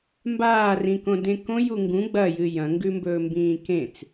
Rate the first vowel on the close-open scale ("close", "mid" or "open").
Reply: open